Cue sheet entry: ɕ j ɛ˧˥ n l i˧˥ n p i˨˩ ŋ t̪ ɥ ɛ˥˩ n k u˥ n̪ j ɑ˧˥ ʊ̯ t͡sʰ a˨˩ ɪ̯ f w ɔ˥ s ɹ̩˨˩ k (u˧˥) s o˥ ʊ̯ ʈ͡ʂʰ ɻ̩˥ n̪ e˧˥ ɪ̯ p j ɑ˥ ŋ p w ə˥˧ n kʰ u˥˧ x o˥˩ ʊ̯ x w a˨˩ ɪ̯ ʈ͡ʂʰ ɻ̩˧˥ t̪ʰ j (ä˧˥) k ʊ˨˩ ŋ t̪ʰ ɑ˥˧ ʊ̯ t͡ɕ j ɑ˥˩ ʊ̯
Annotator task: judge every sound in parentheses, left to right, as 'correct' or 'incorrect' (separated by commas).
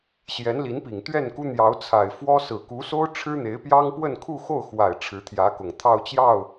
correct, correct